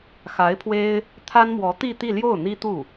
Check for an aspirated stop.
present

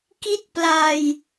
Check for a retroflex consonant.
absent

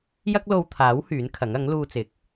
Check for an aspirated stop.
present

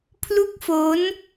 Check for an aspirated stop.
present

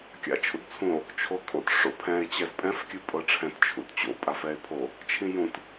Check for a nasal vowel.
present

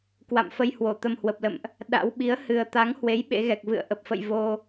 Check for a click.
absent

